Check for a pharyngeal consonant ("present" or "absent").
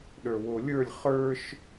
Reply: absent